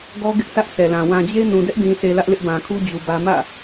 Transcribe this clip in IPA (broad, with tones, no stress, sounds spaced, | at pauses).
ɡ ɔ˦ ɡ ɪ˦ ʔ s ä˦ ʔ sʰ ɛ˨ l ã˨ w ã˨ d͡ʑ e˦ n ũ˨ d ɛ˦ ʔ d ĩ˨ s e˨ l ä˦ ʔ l ɪ˦ ʔ b ã˨ kʰ u˦ d͡ʑ u˨ b ä˦ m ä̰˦˨